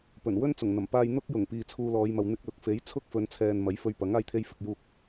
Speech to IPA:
pɵ˨˩nwɵ˥n t͡sʊ˨˩ŋn̪ɐ˨˩mpaː˧j n̪ʊ˥k̚ jʊ˨˩ŋ piː˨t͡sʰuː˧lɔː˨˧jmɐ˨w n̪ɪ˧k̚lʊ˨k̚ fe˨˥jt͡sʰʊ˥k̚fɵ˨˧nt͡sʰɛː˨n mɐ˨˥jfɵ˧ɥpɐ˨˥ŋ aː˧jt̪ʰe˧jfɪ˨k̚ juː˧k̚

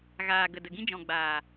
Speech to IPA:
ɣaː˨ɡə˨ də˨ɡĩ˦d͡ʒɔ̃˨ ɡ͡baː˨

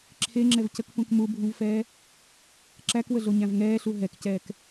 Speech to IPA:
ǁʰeŋ͡ǁɛvcəkpũk mubʱũvfɛː | ǁækwəɮoɲæ̃v ŋɛːɬu ɦɛkcɛːk

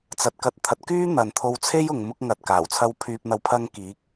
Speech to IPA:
t͡sɐ˨˥t̚kɐ˨˥t̚t̪ʰɐ˨˥t̚ kyː˥ n̪ɐ˨nt̪ʰo˧wt͡sʰe˥j ʊ˨˧ŋmʊ˥k̚ŋɐ˧t̚ kaː˨˩wt͡sʰɐ˧w pʰyː˧p̚n̪ɐ˧w pʰɐ˧ŋ kiː˨˥k̚

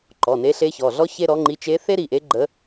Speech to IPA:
ǃɔ˩˧˩ne˧˥ ɬe˧˥çɔ˩˧˩ɮɔ˥ çe˥ɾɔ˧˥ŋ͡ǃi˧˥ t͡ʃe˧˥θe˥ɾi˩˧˩ʔe˧˥ ɡ͡ǃə˧˥

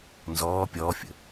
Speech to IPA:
nzɔː pʲɔːfʲə̰

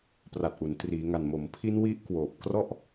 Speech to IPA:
pra˨˩t̚ʔu˩˦n triː˩˦ŋa˨˩n mo˩˦mpʰi˦˥n wi˦˥ʔ kwoː˨˩p̚krɔ˥˩ʔ

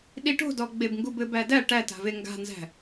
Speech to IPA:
ɗiʈo̤dɔ ɡ͡bebŋɡubɘb ædæ ʈæt a̤veŋɡa̤nzæ̤

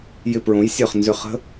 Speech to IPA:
jɪ˧˩pɹõ˩˥j sʲœ˧˩χnzʏ˧˩ χə̤˦˥

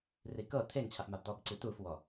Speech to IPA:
rikɤ t̪ʰeŋt͡ɕʰafmab d̪ɔbǀit̪ufwɔ

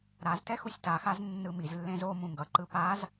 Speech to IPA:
ɾaztɛ xusʲtaxaz nːɯmizlːẽz o mũŋɡʌǃɯ paz

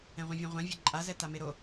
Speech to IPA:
ɛ̃ʁʷĩvʲẽʁʷã vʲɛǃʼazɛ tameɾo

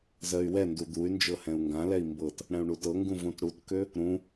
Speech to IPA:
zɜy̯wɛndu d̪uy̯ nd͡ʒɤhɛ̃u̯ŋɡãlɛi̯ mbɤt | ɽɛ̃u̯ɳutɤŋɡũ vũtɽutkø | ɾũ

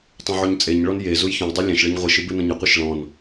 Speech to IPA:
tˤũʕuɲt͡sʼeɲɭɔn jezuj çõjdˤo lʲɛ̃ʃɭɘɲ ʁʷiʃɨ bɨnõɲɐqʷɨʃ ɭɔ̃n

